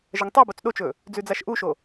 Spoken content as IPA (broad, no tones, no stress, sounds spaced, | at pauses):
ʒ ɐ ŋ tˤ e b o t͡s ɗ o t͡ʃ ɵ | d͡z ʉ d͡z a ʃ ʔ u ʃ o